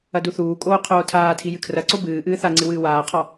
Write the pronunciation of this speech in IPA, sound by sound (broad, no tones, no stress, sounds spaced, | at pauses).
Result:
ɐ d u θ uː kʼ oː qʰ oː tʰ aː tʰ i j ɨ kʰ r ɐ ǀ o b ɨː ʔ ɨː θ a ŋ͡ǀ ɨ w ɨː w aː qʰ ɔ